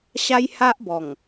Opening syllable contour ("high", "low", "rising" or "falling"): high